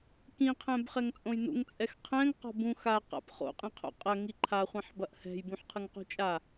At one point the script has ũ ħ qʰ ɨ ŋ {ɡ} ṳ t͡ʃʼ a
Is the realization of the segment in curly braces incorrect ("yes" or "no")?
yes